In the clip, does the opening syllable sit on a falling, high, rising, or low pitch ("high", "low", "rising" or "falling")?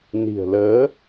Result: low